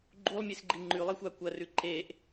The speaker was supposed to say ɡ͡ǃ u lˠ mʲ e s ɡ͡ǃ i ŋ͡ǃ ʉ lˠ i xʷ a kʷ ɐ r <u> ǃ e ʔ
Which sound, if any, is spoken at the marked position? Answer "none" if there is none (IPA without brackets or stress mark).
ʉ